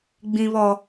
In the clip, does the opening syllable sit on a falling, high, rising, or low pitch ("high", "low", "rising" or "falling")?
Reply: high